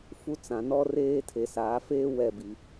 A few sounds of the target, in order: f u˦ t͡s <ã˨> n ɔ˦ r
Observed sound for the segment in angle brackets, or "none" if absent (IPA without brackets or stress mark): ã˨